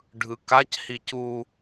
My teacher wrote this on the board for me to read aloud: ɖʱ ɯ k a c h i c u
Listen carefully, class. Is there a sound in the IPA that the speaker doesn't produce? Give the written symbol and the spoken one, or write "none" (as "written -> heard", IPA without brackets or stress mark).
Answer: none